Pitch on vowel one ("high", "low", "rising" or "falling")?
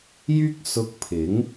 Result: high